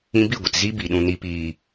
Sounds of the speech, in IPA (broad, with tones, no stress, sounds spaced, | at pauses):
ĩ˧ b i˦˨ ɡʷ ə˨ t z i˦ b i˨ ɗ ũ˨ n i˨ p iː˨